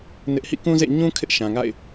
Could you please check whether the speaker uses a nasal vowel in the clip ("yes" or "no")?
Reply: yes